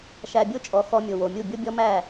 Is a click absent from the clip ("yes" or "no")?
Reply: yes